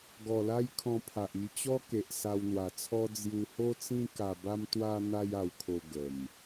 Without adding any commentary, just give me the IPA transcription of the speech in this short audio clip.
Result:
ɡ ɔ˨˩ l a˦ j kʰ ɔ̃˧ pʰ a˨ ʔ i˧ t͡ɕ ɔ˦ k e˨ ʔ s a˧ w n̪ w a˨˩ t͡sʰ ɔ˦ d͡z j u˧ h o˦ t͡s ĩ˦ k a˧ b a˦ m t̪ w a˦ n̪ a˦ j a˧ w kʰ o˧ ɡ ə˨˩ m

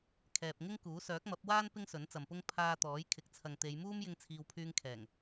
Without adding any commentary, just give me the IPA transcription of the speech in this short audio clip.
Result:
kʰ ɛː˨ p̚ ŋ ɪ˥ ŋ k uː˨˥ s œː˨˥ k̚ m ɐ˨˥ p̚ w aː˥ n p ɪ˥ ŋ s ɵ˨˥ n t͡s ɐ˨ m p ʊ˥ ŋ pʰ aː˧ t̪ ɔː˨˥ j kʰ ɪ˨˥ k̚ t͡sʰ ɐ˨ ŋ t̪ e˨˧ j m uː˥ m j ɪ˧ ŋ t͡sʰ iː˨ w pʰ yː˧ ŋ kʰ ɛː˨˩ ŋ

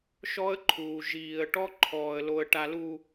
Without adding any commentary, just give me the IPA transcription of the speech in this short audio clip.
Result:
ʃ ɔ˦ ə̯ ǃʰ uː˨ ʒ iː˨ ə̯ ʈ ɔ˦ ǃʰ ɔː˨ ə̯ l o˨ ə̯ ʈ a˨ l u˨

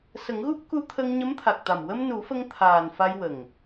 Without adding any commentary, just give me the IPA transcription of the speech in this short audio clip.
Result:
s ə˨˩˦ ŋ ɣ u˦˥ p̚ k u˧˥ t̪ʰ ə˧ ŋ ɲ ə˧˥ m t̪ʰ a˨˩ k̚ t̪ a˨˩ m w ə˧ m n u˨˩˦ f ə˧ ŋ t̪ʰ aː˨˩ n f a˧ j w ə˨˩ ŋ

